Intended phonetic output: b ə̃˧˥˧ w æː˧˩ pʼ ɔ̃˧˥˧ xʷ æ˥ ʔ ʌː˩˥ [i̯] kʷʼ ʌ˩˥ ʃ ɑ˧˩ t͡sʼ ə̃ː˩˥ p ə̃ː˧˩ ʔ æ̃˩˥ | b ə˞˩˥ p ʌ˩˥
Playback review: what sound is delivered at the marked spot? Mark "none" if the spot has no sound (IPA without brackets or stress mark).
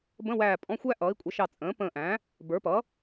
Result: i̯